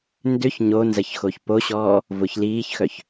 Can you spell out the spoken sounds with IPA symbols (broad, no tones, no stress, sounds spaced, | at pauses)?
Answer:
n d ʏ ç ɲ o n z ɐ ç x o ç p o ɕ ɔː | v ʊ ç l iː ç x œ ç